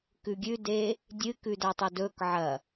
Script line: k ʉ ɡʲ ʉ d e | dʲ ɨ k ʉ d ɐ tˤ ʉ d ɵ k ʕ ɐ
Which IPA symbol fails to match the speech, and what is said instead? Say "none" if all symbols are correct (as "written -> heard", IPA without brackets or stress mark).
none